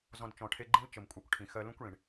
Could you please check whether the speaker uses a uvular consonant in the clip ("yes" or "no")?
no